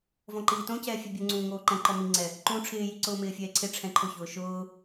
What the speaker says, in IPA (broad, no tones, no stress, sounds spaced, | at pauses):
v ɔ̃ ǃ iː t õ c ɛː fʲ ɛ bʲ ʊ ŋ͡ǀ ũː ŋ oː ǃ ɛ̃ ǃ ɔ m i ŋ͡ǀ ɛ | ǃ ũː ʈ͡ʂʰ ɪː j i ǀ ʊː m ɪː fʲ ɛː ǀʰ ɪ ʈ͡ʂʰ ɛ̃ ǃʰ ʊ ç ʊː ʃ ʊː